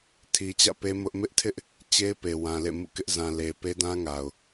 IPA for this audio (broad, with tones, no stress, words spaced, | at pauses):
tʰi˨t͡ɕä̰˦˨pe˦ mʊ˦ʔ mɪ˦ʔtʰɪ˦ʔ | t͡ɕe˦ɪ̯pe˨wã˨ lḛ˦˨mṵ˦˨kɪ˦ʔ zã˨le˨pe˦dã˦ ŋa˨ʊ̯